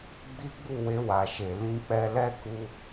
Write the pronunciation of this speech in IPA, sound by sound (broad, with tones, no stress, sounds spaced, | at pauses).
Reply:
ɡ͡b i˦ ɡ͡b u˦˨ w e˧ w a˨ ʃ e˨ l ĩ˧ k͡p ɛ˧ l ɛ˦ k u˦